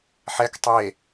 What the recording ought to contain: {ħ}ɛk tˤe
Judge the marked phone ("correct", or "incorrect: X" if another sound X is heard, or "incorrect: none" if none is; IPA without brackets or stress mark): correct